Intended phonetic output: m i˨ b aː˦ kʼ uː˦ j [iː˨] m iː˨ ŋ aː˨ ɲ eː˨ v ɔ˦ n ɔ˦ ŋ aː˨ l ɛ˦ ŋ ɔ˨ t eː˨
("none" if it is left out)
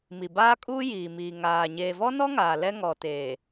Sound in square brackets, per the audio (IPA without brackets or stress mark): iː˨